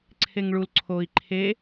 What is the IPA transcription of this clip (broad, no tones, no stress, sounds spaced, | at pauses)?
ǀʰ e ŋ ɭ u l ǀʰ o i̯ ǃʰ e